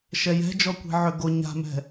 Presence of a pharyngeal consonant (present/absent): present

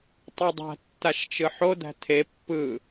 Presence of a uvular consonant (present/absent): absent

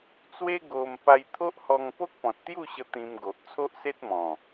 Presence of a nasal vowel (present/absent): present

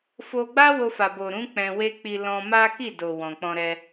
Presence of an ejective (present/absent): absent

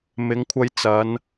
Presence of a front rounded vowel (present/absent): absent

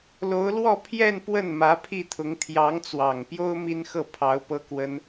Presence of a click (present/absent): absent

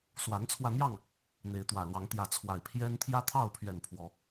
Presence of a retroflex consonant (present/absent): absent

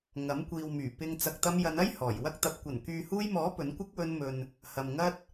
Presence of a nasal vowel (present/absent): absent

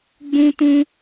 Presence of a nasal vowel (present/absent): present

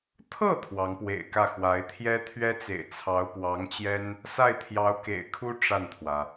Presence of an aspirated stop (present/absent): present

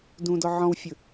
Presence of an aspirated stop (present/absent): absent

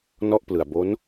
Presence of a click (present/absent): absent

